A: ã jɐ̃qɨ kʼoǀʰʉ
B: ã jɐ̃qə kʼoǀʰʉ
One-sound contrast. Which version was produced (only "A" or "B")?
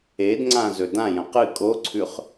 A